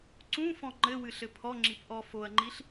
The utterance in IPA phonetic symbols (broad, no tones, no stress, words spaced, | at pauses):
ǀũfɔ̃ ŋ͡ǃɘwɨɬɘ pʰɔŋ͡ǁip ʔɔ foɐ̯ŋ͡ǃiɬ